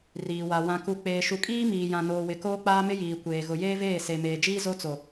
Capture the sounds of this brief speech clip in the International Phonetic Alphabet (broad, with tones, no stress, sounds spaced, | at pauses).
r iː˨ w a˨ w ã˨ k u˨ k͡p eː˨ ʃ u˨ kʼ iː˦ m iː˨ j ã˨ n oː˨ w ɪ˨ k oː˦ k͡p aː˦ m ɪ˦ j iː˨ kʷ eː˨ ɣ ʊ˨ j eː˦ v eː˦˨ s e˨ m eː˨ d͡ʒ iː˦ z o˦ t͡s o˨